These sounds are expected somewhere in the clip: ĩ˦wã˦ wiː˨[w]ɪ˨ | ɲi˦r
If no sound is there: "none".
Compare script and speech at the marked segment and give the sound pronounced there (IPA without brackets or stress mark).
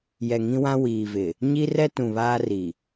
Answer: v